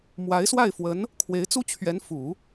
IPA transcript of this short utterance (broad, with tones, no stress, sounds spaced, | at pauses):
m w a˧˥ ɪ̯ s w a˥˩ ɪ̯ f w ə˧˥ n | kʰ w e˧˥ ɪ̯ t͡s u˥ t͡ɕʰ ɥ ɛ˧˥ n f u˨˩˦